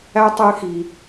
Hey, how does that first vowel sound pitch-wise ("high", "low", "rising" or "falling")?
high